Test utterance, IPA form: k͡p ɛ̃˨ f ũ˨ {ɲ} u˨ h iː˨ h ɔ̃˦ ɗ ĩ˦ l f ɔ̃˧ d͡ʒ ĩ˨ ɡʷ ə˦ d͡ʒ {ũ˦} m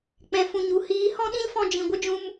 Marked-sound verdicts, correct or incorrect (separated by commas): correct, incorrect